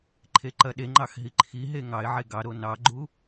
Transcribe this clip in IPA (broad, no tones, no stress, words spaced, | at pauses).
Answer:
ǃʰeǃɐɗeŋ͡ǃɑx ɦiǃʰiɦe ŋɑɪ̯ʕe ɡɑɾo nɑɡ͡ǃu